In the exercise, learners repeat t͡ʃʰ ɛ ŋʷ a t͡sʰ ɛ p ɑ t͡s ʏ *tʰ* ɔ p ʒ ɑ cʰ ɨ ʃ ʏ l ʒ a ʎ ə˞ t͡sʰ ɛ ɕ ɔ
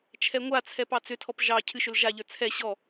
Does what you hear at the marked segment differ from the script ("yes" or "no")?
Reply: no